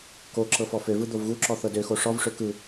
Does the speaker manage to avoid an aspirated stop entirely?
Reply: yes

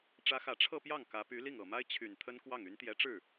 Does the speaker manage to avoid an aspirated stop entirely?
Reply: no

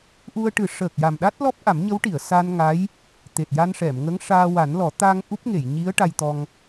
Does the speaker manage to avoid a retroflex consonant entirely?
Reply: no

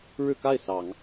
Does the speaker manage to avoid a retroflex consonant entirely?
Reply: no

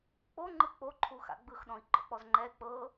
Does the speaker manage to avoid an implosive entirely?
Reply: no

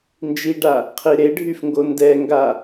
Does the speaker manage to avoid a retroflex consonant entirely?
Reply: no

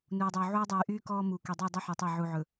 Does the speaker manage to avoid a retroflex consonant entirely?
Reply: yes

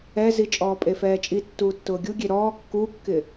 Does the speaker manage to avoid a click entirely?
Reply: yes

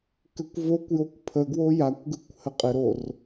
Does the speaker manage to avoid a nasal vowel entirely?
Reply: yes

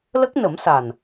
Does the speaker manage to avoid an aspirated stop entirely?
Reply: yes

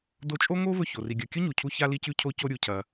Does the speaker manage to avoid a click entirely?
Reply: yes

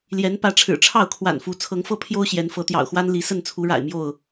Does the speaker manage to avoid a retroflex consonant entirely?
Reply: no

